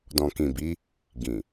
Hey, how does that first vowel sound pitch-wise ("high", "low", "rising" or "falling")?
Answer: low